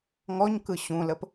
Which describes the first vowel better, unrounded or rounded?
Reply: rounded